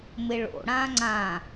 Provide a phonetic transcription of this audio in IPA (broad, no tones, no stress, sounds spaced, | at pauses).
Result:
m ɪ ɭ o̰ ɽ ã ŋ͡ǀ ã